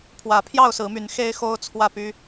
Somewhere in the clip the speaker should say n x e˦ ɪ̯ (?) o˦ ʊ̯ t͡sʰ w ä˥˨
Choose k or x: x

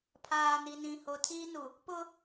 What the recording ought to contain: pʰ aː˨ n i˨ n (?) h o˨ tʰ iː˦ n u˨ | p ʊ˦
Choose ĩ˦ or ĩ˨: ĩ˨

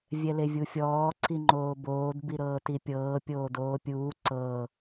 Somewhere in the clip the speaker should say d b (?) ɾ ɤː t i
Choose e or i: i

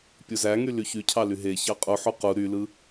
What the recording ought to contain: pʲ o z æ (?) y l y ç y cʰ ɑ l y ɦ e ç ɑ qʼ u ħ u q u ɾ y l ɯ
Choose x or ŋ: ŋ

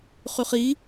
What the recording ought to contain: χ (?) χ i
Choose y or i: y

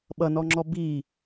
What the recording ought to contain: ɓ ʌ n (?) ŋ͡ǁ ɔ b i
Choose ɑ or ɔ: ɔ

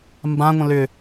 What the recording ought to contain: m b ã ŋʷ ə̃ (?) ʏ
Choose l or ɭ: l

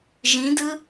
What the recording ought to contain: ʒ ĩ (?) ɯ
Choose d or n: d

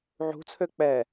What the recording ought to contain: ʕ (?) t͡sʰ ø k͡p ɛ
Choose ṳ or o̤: ṳ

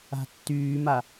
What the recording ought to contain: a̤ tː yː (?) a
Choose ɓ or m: m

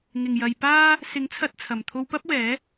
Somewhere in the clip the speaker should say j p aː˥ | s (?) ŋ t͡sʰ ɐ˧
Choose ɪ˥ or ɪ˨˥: ɪ˨˥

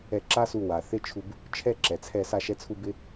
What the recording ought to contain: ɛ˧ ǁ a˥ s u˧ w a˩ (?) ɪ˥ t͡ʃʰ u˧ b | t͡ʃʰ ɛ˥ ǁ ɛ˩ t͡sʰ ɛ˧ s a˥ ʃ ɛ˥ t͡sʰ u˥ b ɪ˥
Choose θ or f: θ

